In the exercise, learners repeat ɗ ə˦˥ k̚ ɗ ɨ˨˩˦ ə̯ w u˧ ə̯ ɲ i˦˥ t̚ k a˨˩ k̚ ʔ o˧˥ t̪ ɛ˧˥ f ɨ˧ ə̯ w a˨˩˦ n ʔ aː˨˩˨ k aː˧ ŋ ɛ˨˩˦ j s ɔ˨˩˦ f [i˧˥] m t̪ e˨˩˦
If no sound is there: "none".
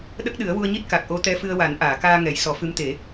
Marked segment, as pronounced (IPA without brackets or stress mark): ɨ˧˥